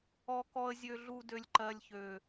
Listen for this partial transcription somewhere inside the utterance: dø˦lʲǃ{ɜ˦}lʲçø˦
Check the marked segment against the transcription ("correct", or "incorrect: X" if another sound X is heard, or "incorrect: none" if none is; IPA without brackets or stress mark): correct